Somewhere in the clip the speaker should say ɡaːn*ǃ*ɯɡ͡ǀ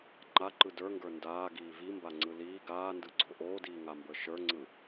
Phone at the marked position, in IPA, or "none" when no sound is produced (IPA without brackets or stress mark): d